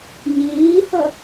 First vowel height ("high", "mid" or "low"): high